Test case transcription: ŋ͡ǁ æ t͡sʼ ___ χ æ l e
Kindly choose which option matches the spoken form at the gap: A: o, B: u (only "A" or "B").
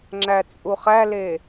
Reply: B